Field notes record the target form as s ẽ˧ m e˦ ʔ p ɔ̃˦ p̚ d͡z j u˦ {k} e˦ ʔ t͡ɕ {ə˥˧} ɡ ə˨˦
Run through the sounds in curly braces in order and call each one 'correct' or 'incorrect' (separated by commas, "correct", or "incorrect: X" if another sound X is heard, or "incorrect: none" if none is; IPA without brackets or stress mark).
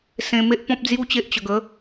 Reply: incorrect: t͡ɕ, incorrect: ə˧